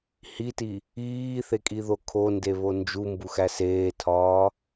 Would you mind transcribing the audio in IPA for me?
hiti | iːθekʼiðo kʰondeβo nd͡ʒumbuxæ seːtʰɒː

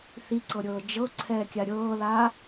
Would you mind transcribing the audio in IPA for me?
θiǀɤɾʲɤː d͡ʒɤ ǀʰɛːkʲaɾʲɤːla

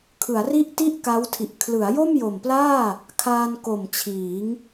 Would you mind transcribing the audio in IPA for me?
kʰɯ˩˦a̯ri˥˩ʔ ti˥˩ʔka˦˥wtʰi˨˩ʔ kʰlɯ˩˦a̯jo˥˩mjo˨˩mplaː˥˩ | kʰaː˧nko˨˩mt͡ɕʰiː˩˦ŋ

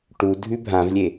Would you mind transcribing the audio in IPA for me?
ʈu dʱʉbʱãvlʲe

